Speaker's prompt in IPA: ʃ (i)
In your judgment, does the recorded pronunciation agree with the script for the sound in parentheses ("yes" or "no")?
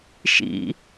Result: no